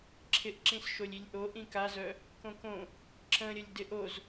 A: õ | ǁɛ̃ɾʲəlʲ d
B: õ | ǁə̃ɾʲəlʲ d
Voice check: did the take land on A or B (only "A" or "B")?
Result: B